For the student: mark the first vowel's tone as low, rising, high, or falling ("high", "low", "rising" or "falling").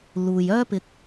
low